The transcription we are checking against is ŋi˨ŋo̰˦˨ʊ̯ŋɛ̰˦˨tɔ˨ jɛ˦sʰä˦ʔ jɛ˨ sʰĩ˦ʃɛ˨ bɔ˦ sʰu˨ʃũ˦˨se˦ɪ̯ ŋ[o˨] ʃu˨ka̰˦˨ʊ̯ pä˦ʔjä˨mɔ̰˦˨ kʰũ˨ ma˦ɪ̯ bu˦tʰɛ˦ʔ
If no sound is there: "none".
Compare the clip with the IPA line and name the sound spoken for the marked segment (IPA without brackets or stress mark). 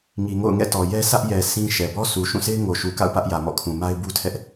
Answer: o˨